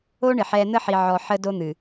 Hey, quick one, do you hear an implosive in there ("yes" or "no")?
no